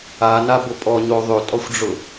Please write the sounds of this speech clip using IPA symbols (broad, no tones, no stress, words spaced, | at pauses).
anabʊ pʼɔɲo ðˤøtʼɔxʷɖ͡ʐʊ